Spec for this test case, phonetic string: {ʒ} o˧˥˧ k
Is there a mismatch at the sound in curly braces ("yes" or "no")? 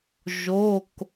no